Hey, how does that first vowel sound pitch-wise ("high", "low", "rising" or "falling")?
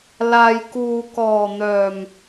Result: low